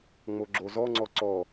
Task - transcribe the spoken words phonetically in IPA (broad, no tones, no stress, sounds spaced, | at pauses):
ŋ͡m o ɡ͡ǁ o z ɔ ŋ͡ǀ ɔ ǀ ɔ